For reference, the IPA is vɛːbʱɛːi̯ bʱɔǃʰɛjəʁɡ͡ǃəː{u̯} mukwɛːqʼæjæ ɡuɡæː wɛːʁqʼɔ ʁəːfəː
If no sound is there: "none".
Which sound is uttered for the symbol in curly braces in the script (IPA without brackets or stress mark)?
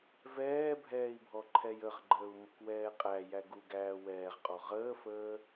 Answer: u̯